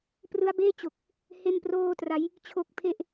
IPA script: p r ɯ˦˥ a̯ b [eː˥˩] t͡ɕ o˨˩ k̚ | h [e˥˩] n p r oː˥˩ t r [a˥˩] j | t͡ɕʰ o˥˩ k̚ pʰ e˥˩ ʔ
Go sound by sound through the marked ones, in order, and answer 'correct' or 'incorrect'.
correct, correct, incorrect: a˦˥

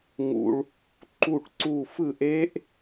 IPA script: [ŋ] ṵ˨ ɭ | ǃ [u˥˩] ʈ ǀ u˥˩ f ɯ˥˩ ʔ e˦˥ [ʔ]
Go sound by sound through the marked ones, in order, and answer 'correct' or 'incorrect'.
correct, correct, correct

